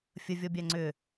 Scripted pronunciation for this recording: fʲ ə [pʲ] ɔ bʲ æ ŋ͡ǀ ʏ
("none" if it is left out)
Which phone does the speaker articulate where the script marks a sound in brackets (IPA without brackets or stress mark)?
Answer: vʲ